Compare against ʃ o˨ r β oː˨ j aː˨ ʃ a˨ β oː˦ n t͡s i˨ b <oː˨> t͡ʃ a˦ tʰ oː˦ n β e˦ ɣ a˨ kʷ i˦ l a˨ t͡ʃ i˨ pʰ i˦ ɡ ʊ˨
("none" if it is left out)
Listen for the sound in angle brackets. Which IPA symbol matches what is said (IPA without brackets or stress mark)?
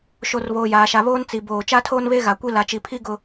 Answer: oː˨